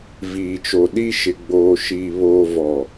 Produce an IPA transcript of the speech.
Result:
viː˨t͡ʃo˨ɗi˦ ʃɪ˨ɡ͡boː˨ʃiː˨ βoː˨vɔ˨

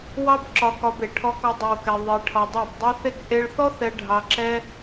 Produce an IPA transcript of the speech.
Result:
wɑ˦bǁɒ˧kɒ˧be˨ ʈʰɔ˧kɔ˧ dˤe˧wkɛ˧ ðˤe˧ʈʰɒ˧dˤɛ˦˨b dˤe˦ θe˦k ʔe˧ɭθɔ˦ θɛ˧ ɖʱɑ˧ǁɛ˦

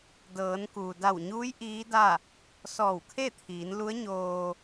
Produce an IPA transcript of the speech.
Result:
dɤː˩˧nkuː˩ da˧˩wɲuː˧˥j ʔiː˧˥da˥˨ | sɔː˧˩wkʰe˥˨t̪ʰiː˩˧n lu˧˥ə̯ɲoː˧

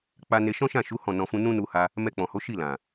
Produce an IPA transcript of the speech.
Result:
k͡pa˦ ne˧ʃɔ̃˦ʃã˦˨ ʃu˨˦ hɔ̃˦˨nɔ̃˧fũ˦ nũ˦nu˧ha˧ | mɛ˧k͡pɔ̃˨ho˨˦ ʃi˦˨lã˨

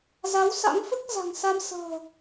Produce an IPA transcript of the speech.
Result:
za˨˦wsa̰˧˥ŋfɨ˦˥k̚ za̤˨˩ŋsa˧m sə̤ː˨˩

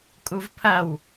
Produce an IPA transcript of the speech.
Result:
kʼuvpʰɐw

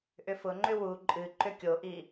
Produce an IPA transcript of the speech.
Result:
ʔʏfʊŋ͡ǃʏ wu ǃʼɨ ǃʏkʲoʔi

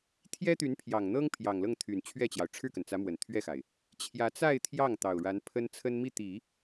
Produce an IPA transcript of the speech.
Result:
t̪ʰjɛ˥t̪y˧˥npʰjɑ˨˩ŋn̪ɤ˥ŋ pʰjɑ˨˩ŋlɤ˥˩ŋt̪ʰy˨˩n t͡ɕʰɥɛ˥˩t͡ɕjɑ˩ʊ̯ ʈ͡ʂʰɻ̩˥˩kə˩nt͡sä˧˥ mwə˨˩nt̪ʰɥɛ˥˩xa˩ɪ̯ | t͡ɕʰjä˧˥t͡sa˥˧ɪ̯ t̪ʰjɑ˥˩ŋ t̪ɑ˨˩ʊ̯ɻa˧˥n pʰə˥nt͡sʰə˥n mi˥˩t̪i˨˩˦

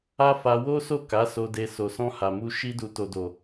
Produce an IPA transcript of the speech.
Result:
a˦ fa˧ wo˦so˦˨ ka˨˦so˧de˧ so˨sɔ̃˧ ha˨mu˧ ʃi˧du˨ to˨do˨

